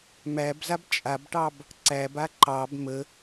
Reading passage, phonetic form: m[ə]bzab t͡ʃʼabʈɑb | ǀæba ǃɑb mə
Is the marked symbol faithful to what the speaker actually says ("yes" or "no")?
no